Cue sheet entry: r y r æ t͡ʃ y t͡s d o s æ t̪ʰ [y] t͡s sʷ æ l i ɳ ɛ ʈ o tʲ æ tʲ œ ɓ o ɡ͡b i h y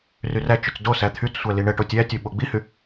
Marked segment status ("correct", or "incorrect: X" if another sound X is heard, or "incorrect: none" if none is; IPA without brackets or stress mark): correct